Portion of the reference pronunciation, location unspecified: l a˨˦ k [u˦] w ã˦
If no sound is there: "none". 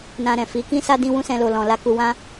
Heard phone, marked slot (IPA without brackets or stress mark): u˧